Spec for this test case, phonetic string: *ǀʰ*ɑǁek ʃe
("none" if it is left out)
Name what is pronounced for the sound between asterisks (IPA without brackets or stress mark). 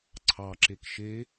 ǀʰ